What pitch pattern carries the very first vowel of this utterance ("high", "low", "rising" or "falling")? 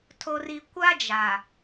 low